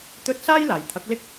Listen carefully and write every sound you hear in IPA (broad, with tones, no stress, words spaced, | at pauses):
t̪ɵ˧t̚ saː˥j laː˨˩jt̪ʰɐ˨˥k̚lɪ˥k̚